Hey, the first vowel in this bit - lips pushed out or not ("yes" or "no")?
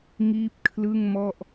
no